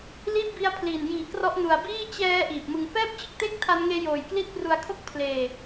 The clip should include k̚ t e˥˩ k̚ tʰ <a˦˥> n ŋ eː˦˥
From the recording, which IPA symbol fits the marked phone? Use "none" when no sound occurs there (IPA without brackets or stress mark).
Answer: a˦˥